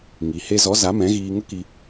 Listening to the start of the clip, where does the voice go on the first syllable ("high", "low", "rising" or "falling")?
low